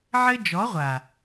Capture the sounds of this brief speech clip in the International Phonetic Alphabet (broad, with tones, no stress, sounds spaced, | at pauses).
ʕ ɘ˦ d͡ʒ ɔ˨˦ ʁʷ a˨